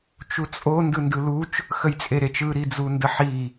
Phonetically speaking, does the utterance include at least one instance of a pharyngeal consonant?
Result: yes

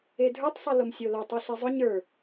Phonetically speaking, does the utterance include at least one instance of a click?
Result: no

